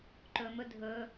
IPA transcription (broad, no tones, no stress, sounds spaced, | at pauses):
ǃ ɵ m ɵ dʱ ɵ